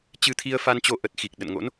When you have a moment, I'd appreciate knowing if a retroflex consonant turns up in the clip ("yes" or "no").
no